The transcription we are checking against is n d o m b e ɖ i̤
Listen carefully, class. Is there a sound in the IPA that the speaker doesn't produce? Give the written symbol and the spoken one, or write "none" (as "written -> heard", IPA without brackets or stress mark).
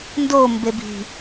ɖ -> b